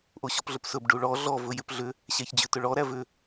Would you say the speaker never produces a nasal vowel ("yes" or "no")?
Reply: yes